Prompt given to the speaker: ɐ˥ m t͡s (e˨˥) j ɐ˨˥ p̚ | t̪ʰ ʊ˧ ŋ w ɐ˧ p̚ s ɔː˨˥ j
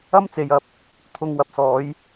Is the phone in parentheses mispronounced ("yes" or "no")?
yes